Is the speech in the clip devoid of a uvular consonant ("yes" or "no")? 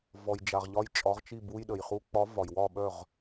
no